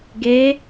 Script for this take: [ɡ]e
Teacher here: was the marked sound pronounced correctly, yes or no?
yes